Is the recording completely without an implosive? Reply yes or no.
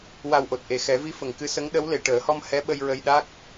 no